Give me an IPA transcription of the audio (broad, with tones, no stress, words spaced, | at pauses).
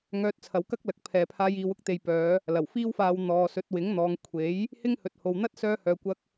ŋœː˧t̚t͡sʰɐ˨˧wkɐ˥k̚lɐ˨k̚ pʰɛː˨pʰaː˧j iː˨wʊ˥k̚ t̪e˨jpœː˨˧ | lɐ˨˩w fiː˥wfaː˧w n̪ɔː˨sɵ˨˥t̚ wɪ˨˥ŋn̪ɔː˨˧ŋ kʷʰe˨˥j | hɪ˥ŋhɵ˨t̚ho˨w n̪ɐ˥t̚ sœː˧hœː˨kʷɐ˧k̚